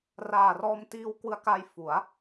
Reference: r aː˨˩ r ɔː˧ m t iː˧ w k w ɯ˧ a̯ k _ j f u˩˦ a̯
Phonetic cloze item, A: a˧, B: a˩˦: A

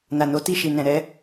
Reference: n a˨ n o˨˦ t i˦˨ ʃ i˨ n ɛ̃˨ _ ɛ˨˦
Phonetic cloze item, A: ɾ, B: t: A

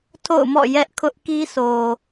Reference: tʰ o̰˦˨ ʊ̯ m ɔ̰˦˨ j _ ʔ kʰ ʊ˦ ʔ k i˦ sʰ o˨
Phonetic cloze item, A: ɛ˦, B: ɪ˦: A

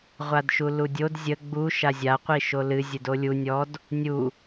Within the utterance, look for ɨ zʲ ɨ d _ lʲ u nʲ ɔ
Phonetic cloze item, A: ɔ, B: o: B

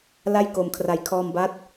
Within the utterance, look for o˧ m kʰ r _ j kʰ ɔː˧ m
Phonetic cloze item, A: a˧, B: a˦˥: A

